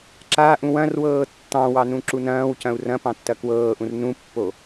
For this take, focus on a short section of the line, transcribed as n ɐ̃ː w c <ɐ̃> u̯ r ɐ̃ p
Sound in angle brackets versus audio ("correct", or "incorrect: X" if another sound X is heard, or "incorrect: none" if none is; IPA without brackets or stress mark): correct